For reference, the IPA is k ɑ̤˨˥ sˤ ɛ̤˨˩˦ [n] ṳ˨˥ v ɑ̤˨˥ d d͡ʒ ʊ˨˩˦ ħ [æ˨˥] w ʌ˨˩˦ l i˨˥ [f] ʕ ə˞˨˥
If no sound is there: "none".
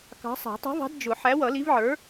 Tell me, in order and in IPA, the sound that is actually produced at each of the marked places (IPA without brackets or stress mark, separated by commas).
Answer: tˤ, æ˨˥, v